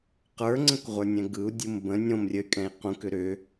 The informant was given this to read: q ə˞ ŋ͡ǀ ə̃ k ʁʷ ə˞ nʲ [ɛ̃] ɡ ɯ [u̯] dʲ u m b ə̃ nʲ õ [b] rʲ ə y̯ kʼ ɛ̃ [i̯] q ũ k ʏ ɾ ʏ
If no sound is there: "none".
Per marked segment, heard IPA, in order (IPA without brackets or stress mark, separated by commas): ɛ̃, u̯, m, i̯